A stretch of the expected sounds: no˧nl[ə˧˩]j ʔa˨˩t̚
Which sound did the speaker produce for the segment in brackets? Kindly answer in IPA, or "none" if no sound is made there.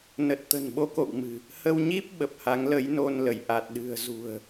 ə˧˩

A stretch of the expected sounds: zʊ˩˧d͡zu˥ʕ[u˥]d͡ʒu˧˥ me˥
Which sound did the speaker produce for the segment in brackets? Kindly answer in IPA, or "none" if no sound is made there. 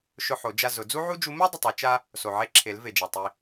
u˥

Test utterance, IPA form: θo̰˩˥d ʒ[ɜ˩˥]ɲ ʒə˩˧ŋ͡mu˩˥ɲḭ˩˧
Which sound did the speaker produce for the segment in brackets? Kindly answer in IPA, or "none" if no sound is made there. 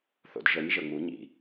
ɜ˩˥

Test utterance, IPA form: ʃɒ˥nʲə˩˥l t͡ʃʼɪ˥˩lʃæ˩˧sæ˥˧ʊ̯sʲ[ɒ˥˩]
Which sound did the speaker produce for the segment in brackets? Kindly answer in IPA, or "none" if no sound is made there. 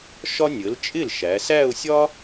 ɒ˥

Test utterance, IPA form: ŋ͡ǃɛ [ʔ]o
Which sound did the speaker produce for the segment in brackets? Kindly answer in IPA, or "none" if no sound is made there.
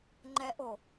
ʔ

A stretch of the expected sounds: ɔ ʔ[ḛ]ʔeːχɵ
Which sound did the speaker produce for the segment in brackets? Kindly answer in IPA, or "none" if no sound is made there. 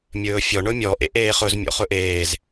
ḛ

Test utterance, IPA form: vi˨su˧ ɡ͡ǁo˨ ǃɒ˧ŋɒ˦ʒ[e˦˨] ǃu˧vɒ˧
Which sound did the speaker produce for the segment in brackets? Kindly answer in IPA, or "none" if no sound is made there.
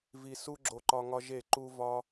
e˦˨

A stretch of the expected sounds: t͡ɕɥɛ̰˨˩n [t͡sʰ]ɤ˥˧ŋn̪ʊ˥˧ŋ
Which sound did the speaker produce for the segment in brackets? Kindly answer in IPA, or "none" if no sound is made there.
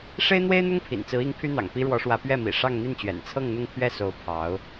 t͡sʰ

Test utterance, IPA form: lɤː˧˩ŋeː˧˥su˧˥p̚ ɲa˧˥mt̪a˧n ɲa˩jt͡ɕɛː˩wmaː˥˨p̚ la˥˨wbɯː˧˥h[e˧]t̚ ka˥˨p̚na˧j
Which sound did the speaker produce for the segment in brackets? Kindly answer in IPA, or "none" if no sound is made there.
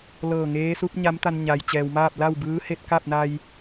e˧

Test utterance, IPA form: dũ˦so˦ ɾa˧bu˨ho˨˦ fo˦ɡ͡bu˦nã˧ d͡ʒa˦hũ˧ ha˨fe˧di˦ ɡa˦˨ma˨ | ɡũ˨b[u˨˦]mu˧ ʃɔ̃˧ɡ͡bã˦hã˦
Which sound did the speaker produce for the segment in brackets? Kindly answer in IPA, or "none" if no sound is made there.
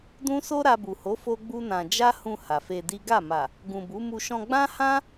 u˨˦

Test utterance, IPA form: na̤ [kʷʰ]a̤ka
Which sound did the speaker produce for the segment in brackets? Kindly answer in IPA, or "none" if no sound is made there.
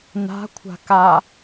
kʷʰ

